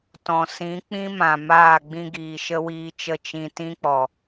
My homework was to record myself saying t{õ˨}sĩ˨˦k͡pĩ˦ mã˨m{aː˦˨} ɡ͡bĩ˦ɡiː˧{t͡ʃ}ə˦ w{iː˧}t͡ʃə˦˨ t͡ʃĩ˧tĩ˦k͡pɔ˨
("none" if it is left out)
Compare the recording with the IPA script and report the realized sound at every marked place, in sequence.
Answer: ɔ̃˨, aː˦˨, ʃ, iː˧

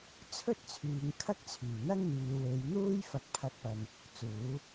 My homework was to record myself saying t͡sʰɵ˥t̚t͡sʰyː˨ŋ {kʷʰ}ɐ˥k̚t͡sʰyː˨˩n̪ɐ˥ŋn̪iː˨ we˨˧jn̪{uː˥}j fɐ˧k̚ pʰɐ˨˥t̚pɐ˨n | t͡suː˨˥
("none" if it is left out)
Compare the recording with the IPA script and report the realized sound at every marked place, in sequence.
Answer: kʰ, uː˥

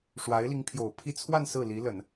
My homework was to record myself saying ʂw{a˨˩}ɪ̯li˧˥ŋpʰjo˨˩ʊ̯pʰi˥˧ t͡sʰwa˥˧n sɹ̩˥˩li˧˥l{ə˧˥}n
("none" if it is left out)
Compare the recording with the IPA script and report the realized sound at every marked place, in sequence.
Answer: a˧˥, ə˨˩˦

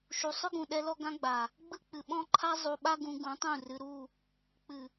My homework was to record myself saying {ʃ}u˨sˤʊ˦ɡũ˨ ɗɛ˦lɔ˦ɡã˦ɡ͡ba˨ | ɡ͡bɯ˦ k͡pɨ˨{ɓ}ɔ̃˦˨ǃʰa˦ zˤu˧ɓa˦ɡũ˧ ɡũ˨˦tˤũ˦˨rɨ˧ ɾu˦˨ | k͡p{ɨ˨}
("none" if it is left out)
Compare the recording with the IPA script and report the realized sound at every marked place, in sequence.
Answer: ʃ, ɓ, ɨ˨

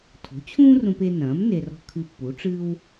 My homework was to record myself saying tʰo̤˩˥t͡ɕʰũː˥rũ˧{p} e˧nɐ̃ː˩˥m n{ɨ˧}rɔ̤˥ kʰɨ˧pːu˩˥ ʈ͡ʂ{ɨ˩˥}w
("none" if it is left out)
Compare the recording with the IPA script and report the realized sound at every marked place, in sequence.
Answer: p, e˧, ɨ˥

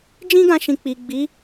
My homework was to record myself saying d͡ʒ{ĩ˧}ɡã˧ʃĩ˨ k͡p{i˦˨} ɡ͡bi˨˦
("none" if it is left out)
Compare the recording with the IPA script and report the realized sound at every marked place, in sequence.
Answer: ĩ˦, i˨

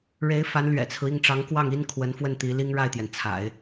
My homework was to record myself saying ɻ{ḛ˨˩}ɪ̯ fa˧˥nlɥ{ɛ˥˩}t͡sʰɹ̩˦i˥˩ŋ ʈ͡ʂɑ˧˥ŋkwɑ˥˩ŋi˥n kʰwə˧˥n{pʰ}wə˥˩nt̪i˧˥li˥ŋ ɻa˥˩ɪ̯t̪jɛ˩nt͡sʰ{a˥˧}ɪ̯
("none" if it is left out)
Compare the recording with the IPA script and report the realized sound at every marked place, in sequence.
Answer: e˧˥, ɛ̰˨˩, f, a̰˨˩˦

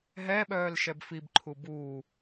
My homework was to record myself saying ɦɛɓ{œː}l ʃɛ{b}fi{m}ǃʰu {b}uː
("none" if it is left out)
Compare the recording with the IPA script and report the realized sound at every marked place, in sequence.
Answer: œː, b, b, b

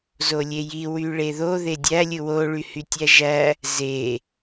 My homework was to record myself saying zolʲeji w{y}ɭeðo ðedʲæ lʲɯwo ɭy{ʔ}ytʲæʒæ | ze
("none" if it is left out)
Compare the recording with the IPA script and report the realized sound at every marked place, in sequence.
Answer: y, h

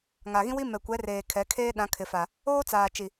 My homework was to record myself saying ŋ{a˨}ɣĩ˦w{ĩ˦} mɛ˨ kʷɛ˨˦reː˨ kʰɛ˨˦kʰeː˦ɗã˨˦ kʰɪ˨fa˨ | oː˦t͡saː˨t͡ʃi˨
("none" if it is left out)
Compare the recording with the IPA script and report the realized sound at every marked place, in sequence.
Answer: a˨, i˦

